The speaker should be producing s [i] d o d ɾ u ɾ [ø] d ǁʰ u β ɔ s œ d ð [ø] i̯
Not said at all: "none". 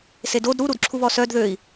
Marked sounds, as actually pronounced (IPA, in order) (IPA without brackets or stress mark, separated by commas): e, u, ø